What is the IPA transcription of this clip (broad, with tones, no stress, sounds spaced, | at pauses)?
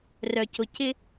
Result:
r œ˧ c ʊ˧ c ɪ˥